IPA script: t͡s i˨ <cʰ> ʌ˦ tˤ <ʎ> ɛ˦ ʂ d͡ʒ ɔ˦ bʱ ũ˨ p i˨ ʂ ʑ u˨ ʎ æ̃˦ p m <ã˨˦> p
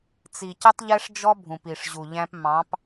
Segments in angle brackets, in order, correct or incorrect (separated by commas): incorrect, correct, incorrect